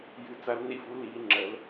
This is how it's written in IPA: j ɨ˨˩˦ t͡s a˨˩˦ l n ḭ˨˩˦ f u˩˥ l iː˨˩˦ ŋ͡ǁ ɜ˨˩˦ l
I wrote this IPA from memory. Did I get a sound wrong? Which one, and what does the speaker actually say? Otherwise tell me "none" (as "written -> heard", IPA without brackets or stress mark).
none